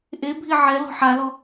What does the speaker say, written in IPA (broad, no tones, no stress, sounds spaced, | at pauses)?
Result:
ʔ e bʱ i ʕ ɛ l ɔ̤ ħ a l ɔ